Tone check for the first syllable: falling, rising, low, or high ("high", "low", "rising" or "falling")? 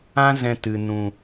high